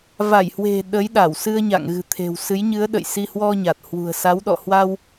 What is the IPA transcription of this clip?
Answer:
v a˧˩ j h w e̤˨˩ ɗ ə˨˦ j ɗ a˧˩ w s ɨ˧ ə̯ ɲ a̰˧˨ ŋ ɣ ɨ̤˨˩ t̪ʰ e̤˨˩ w s ɨ˨˦ j ɲ ɨ˨˦ ə̯ ɗ ə̰˧˨ j s i˧ h w ɔ˧ ɲ a˨˩ t̚ h w ṳ˨˩ ə̯ s a˨˦ w ɗ ɔ̰˧˨ h w a˧ w

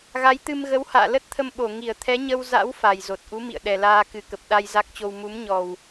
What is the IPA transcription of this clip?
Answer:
ɣ a˨˦ j t̪ ɨ˧ m ɣ ə˨˦ w h a̰ː˧˨ l ə˦˥ t̚ t̪ʰ ə˧ m ɓ o˧˩ ŋ i˧˩ ə̯ t̪ʰ ɛ˨˦ ɲ ə˧ w z a̰˧˥ w f a˨˩ j z o˨˩ t̚ ʔ u˨˦ m ḭ˧˨ ə̯ ɗ ɛ˨˩ l aː˧ k ɨ˨˩ k ə˨˩ p̚ ɗ a˧ j z a˦˥ k̚ t͡ɕ o˧ w m u˨˦ m ɲ ɔ˨˩ w

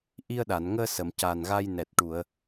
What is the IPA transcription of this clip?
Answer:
ʔ i˧ ə̯ ɗ a˨˩˨ n ŋ əː˧ s ə˨˩˨ m c aː˨˩ n ɣ a˧ j n ɛ˨˩ t̚ ʈ u˨˩˨ ə̯

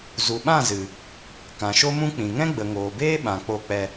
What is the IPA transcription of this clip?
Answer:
z u˨ ɓ ã˦˨ z ɨ˨ | k ã˨ ʃ o˦ m ũ˦ k͡p ĩ˨ ŋ ɛ̃˦ ɡ͡b ə˨ ŋ oː˨ b eː˦ ɓ ã˨ k͡p o˧ k͡p ɛ˧

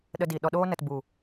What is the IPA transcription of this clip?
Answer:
ɗ ə˧ d i˨ ɗ ɔ˨ ɗ oː˧ n ə˨ t b u˨

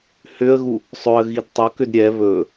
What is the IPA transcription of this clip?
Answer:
h ʏ ə̯ ɣ u | sˤ ɵ ə̯ ɣ i d tˤ o k ʏ d ɾʲ ɛ β ɵ

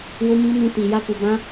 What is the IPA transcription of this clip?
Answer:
w o˧ m ĩ˧ n ĩ˧ t i˨ j a˧ k u˨ b ã˧

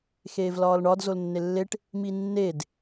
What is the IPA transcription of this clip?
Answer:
x eː v l ɒː l ɳ ɒ d z o l nː e lː e ʈ | m i nː e d

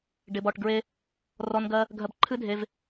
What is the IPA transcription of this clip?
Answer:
ɖ ɪ˧ b ɔ˦˨ ʈ ɡ ɹ e˦ | r ɔ˧ n ɡ ɜ˧ | ɡʱ ɜ˧ b ǃʰ ɨ˦ dʱ e˧ v

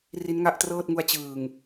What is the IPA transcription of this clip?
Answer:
r i˦˥ n ŋ a˥˩ ʔ t r ɤː˥˩ t̚ ŋ u˦˥ a̯ t͡ɕ ɯː˨˩ ŋ

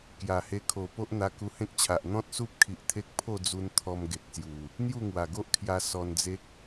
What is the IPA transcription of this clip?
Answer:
k j a˨˩ h e˧ kʰ o˨˩ p o˦ ʔ n̪ a˧ k u˧ h ẽ˦ k̚ t͡ɕʰ a˨ ʔ n̪ ɔ̃˦ t̚ s u˦ p̚ kʰ i˨ ʔ t̪ʰ e˦ k̚ pʰ o˥˧ d͡z u˧ n t̪ʰ ɔ˧ m ɡ e˨ k̚ s j u˨˩ | n̪ j u˥˧ ŋ w a˨˩ ɡ o˦ ʔ kʰ j a˧ s ɔ˧ n d͡z e˦ k̚

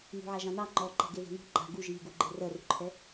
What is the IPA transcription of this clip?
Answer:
n ṳ ʕ a ʒ ɑ̃ n ɑ ŋ͡ǃ ɔ ǃ ɛ̤ ɡ e ð ɛ̤ n ṳ ɡ͡ǃ a̤ ɡ u ʒ iː ɡ u ɡ͡ǃ e r ɜ r ṳ ǃʰ ɛ

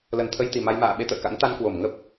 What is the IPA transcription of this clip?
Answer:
l ə˨˩ n t̪ʰ ə˧ j t̪ i˨˩ m a˧ j m a̰ː˧˨ ɓ e˧ t̪ ə̰ː˧˨ k a̰˧˥ n t̪ a˧ n k w o˧˩ m ŋ ə˦˥ p̚

